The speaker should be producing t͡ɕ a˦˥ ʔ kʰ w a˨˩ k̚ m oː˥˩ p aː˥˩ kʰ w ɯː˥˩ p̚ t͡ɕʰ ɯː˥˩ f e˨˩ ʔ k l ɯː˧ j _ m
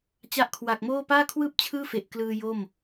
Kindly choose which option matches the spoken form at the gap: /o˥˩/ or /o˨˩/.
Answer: o˥˩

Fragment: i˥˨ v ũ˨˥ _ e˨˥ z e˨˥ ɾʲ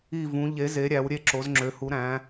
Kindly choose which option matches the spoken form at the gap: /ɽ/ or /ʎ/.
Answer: ʎ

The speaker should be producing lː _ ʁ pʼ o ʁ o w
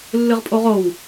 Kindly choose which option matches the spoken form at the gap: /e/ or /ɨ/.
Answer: ɨ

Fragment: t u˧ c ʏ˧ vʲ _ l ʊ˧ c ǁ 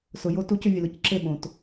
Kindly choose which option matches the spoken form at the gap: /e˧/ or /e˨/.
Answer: e˨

